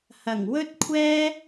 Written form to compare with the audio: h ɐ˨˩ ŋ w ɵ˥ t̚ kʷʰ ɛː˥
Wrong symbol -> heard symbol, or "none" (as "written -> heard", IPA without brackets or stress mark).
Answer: none